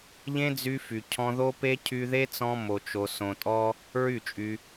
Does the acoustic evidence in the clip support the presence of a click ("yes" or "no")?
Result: no